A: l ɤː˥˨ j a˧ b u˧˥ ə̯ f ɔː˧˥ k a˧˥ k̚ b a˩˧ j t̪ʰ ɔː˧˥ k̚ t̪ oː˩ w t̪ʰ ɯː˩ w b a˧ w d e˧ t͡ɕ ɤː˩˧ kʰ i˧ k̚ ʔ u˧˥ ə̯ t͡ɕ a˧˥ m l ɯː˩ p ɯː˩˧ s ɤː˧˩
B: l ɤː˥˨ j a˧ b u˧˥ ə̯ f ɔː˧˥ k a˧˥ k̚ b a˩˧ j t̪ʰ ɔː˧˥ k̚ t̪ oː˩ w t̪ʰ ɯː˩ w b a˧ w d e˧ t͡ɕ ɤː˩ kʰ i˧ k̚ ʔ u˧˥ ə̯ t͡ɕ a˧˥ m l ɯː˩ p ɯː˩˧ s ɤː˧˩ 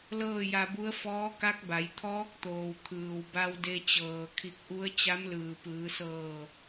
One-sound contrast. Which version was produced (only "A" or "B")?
B